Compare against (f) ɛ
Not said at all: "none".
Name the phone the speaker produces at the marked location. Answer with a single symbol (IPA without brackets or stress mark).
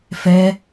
f